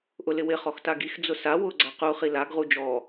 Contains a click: yes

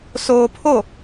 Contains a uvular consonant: no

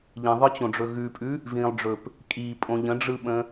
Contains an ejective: yes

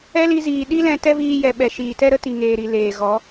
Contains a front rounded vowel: no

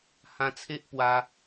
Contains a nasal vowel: yes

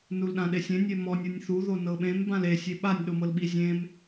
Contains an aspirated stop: no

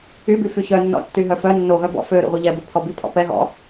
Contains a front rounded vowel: yes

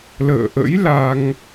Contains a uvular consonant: no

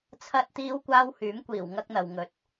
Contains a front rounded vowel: yes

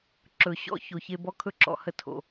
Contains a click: yes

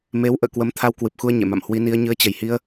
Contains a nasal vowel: no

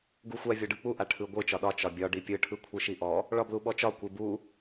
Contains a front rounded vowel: no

